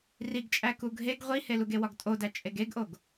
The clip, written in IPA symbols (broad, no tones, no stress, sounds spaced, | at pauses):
r i ɡ t͡ʃʼ æ k u ɡʱ e ɡ ʁʷ i h e l u ɡ e w ɒ ɡ tʼ o d æ t͡ʃʼ e ɡ e ɡ ʔ o ɡ